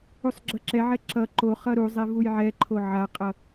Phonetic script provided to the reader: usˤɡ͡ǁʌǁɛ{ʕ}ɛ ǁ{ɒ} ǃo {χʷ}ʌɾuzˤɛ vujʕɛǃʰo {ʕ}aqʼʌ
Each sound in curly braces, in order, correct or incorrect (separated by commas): correct, incorrect, incorrect, correct